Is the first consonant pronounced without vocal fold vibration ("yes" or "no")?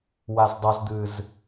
no